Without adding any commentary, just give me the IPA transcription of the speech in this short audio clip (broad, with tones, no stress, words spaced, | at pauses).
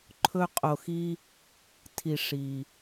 ǃʰɵ˨qʼo˩xi˨ | tʰi˩ ʂi˩